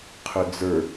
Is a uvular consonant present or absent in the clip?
present